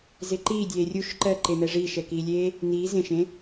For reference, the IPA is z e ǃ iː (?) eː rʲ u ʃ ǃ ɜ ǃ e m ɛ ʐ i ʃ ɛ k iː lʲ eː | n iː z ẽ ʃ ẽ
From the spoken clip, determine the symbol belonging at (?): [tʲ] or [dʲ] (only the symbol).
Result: dʲ